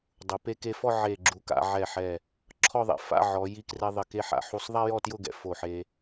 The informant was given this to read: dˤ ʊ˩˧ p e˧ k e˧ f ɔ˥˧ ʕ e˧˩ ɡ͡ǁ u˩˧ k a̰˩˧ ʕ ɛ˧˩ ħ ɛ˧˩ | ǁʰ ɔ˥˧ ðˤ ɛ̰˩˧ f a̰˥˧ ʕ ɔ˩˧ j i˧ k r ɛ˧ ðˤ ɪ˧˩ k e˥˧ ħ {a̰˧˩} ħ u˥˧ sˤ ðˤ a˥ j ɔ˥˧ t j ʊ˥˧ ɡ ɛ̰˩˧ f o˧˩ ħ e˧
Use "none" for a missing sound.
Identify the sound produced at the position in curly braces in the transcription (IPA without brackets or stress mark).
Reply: a̰˧˩